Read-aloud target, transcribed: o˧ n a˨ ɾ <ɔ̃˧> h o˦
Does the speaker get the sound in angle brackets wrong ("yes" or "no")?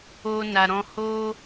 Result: no